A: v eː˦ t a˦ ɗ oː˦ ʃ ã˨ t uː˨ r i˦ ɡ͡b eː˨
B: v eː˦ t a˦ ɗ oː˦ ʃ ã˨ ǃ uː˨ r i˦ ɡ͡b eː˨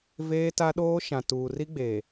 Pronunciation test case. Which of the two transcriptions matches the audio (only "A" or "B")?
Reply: A